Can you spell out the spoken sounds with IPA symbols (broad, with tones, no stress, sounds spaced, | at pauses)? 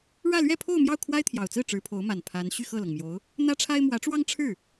ɻ ä˥˧ l ɥ ɛ˥˧ pʰ o˥˧ ʊ̯ m j ɑ˥˩ ʊ̯ kʰ w a˥ ɪ̯ t̪ʰ j ɑ˨˩ ʊ̯ t͡s ɹ̩˥˩ ʈ͡ʂ ɻ̩˧˥ pʰ o˧˥ ʊ̯ m a˨˩ n pʰ a˧˥ n ɕ y˥˧ x ɤ˥˩ l ɤ˩ ŋ m j o˧˥ ʊ̯ | n̪ ä˥ ʈ͡ʂʰ a˥ ɪ̯ m w ä˧˥ ʈ͡ʂ w ɑ˥ ŋ ʈ͡ʂʰ ɻ̩˥˩